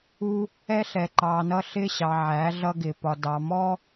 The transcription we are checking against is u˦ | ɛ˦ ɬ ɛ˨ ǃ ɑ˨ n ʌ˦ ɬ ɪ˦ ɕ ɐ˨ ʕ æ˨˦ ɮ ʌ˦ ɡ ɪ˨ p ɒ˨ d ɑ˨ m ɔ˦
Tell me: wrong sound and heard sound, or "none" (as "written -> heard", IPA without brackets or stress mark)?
ɐ˨ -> ɑ˨